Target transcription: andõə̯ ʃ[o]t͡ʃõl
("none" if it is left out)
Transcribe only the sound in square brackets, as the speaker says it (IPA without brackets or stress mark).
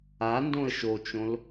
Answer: o